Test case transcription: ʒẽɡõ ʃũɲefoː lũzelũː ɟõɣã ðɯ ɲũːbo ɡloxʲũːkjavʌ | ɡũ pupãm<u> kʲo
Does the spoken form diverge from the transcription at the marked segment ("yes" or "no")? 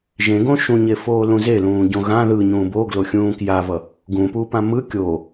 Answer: yes